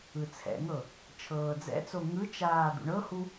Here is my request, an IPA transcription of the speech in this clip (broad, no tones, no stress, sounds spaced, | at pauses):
ɯ t͡sʰ ɛ̰ ŋ ɤ | t͡ʃʰ ɤː d͡z ɛ̰ t͡s o ŋ ɯ t͡ʃ aː d̪ ṵ ɳ ɤ h u